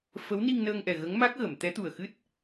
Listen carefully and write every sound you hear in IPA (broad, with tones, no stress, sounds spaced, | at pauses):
f ə˧˥ w n i˧ ŋ n əː˧ ŋ ʔ ɛ˨˩ ɣ ə˧˥ ŋ m a˦˥ k̚ ɣ ə˨˩˨ m t̪ ɛ˧˥ t̪ u˨˩ ə̯ x ɨ˦˥ t̚